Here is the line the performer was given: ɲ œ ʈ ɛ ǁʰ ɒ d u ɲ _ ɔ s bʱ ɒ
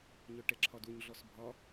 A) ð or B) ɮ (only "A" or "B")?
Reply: B